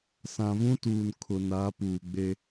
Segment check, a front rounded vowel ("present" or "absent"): absent